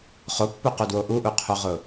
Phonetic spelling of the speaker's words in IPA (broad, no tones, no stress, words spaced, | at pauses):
χopːuqudwo ʔuʔuqʰoʁʊ